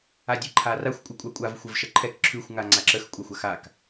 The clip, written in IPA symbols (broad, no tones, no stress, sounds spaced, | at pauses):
a dʲ ɛ ǃʰ a r a xʷ kʷʼ ə kʷʼ a kʷʼ a v xʷ ɐ v ʃ ə ǃʰ ɛ k ǁʰ ʉ xʷ ŋ a ŋ͡ǀ a ǁ ə x kʷʼ a xʷ ɐ x a k